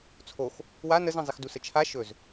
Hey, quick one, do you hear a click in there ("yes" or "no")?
no